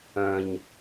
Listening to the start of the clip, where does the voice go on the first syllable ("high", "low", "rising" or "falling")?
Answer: low